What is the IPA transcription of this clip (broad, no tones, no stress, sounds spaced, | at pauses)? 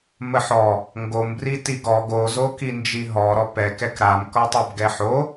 m ə ħ ɔ | ŋ ɡ o m b r i t i ɡ ɔ ɡ o z o k i n d͡ʒ i ɦ ɔ ɾ ɔ p ɛ k ɛ k ɾ a m k ɔ tˤ o b ɡ ɛ ħ o